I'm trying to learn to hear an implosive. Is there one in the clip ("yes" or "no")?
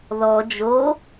no